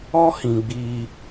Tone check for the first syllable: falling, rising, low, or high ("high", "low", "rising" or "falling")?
high